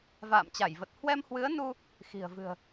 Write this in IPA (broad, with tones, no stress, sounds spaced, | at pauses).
v a̰ː˧˨ m t͡ɕ a˧˩ j v ə˨˩ t̚ h w ɛ˧ m h w ɨ˨˦ ə̯ n u˧ | x i̤˨˩ ə̯ v ɨ̤˨˩ ə̯